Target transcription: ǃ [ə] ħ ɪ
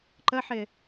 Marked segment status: correct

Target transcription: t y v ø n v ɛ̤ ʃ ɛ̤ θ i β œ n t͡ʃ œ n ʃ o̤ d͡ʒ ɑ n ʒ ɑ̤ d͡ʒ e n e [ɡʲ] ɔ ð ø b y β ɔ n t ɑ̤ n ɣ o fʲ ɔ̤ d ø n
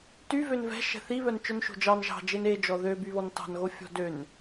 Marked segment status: incorrect: d͡ʒ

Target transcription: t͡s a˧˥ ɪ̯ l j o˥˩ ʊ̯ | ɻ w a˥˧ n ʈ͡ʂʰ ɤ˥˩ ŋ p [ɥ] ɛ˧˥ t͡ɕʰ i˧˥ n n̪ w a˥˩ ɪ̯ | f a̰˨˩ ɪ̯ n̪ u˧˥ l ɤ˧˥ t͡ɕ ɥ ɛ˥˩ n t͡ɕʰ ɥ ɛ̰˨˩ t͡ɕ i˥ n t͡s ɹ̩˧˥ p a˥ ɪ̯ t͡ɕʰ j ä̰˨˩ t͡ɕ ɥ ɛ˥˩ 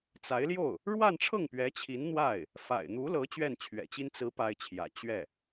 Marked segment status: correct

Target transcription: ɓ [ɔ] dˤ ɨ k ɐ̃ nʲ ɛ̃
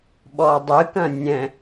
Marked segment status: correct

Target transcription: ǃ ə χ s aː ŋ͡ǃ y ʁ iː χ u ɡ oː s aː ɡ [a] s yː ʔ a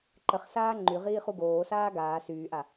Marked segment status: incorrect: aː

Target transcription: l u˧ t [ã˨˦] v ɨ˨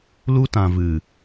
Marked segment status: incorrect: ã˨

